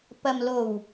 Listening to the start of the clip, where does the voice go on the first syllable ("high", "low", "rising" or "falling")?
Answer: low